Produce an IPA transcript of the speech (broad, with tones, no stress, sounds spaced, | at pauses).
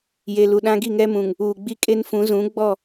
j e˨ l u˨ ɗ ã˦ ɡ i˦˨ ŋ ɛ˦ m ũ˨ ŋ | uː˨ ɡ͡b i˦ kʼ e˦ n f ũ˨˦ z ũ˨˦ ɡ͡b ɔ˦˨